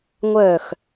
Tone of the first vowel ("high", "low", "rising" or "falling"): falling